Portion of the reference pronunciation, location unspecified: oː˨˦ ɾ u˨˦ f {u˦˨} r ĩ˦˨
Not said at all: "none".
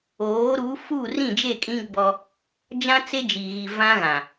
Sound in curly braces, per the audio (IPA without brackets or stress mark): u˦˨